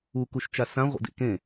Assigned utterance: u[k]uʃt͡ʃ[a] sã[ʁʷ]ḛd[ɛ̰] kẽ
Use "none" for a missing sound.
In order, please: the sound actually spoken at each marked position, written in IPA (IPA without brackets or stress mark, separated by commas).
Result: k, a, ʁʷ, ḛ